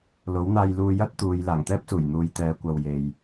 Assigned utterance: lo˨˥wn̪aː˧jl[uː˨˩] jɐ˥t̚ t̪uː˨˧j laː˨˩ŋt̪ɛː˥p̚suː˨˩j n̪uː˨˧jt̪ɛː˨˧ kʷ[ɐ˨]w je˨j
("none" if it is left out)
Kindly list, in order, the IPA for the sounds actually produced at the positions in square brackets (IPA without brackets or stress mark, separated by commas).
uː˧, ɐ˨